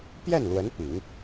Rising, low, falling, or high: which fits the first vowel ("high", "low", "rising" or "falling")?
falling